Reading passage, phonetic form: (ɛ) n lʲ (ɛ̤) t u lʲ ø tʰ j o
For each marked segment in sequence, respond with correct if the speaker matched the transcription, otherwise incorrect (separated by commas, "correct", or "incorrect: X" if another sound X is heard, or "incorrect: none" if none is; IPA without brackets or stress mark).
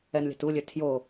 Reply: correct, correct